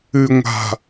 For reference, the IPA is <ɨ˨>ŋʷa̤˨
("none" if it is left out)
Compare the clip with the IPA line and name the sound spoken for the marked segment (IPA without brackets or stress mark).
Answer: ɨ˨